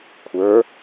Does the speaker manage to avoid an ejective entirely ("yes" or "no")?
yes